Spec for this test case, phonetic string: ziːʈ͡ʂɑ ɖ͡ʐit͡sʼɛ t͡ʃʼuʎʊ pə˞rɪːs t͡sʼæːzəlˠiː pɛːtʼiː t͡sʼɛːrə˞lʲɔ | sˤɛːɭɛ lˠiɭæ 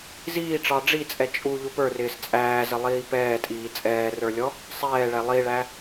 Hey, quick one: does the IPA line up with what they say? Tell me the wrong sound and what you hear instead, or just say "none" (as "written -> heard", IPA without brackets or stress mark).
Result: none